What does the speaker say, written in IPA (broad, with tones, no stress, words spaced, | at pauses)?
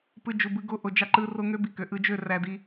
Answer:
pɯ˧d͡ʒu˨bɯ˧ ɡo˧ʔo˨d͡ʒɑ˧ ǃɯ˧ro˧ŋø˦ bi˧kø˨ ʔɯ˧d͡ʒø˦˨ ræ˧di˧